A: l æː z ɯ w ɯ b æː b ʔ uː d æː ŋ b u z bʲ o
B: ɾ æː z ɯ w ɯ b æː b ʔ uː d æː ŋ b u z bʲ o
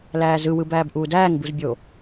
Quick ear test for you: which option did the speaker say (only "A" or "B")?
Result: A